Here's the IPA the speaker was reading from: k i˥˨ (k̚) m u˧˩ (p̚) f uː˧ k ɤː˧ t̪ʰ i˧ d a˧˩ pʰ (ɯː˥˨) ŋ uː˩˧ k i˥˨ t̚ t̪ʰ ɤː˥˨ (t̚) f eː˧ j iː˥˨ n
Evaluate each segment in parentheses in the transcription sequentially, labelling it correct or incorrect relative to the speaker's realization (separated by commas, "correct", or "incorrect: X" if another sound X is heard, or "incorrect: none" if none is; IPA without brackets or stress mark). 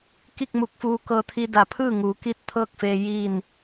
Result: correct, incorrect: k̚, correct, incorrect: k̚